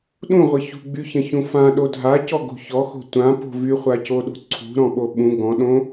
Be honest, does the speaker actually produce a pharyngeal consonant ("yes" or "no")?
no